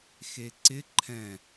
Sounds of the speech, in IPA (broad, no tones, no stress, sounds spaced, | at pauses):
x e ǀ ɪ ǃʰ ɛ̃